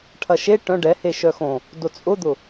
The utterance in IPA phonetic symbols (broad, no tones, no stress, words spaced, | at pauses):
ʈʰɐʃe ʈœ̃ ɖɛhe ʃœxõ | dot͡sʼʊd̪ʊ